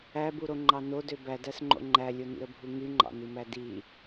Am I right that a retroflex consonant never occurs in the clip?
yes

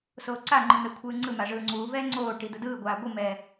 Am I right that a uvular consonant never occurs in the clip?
yes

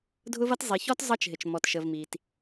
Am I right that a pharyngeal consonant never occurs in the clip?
yes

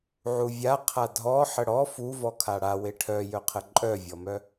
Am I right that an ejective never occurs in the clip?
no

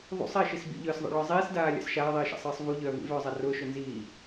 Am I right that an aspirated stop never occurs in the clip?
yes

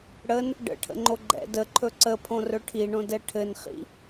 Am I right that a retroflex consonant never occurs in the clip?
no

